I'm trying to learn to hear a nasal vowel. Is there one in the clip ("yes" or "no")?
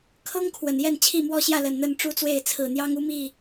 no